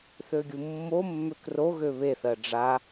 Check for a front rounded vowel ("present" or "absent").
present